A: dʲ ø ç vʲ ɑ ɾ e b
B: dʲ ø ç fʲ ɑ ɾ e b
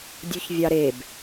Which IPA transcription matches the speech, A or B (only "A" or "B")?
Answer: A